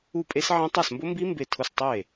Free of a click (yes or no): yes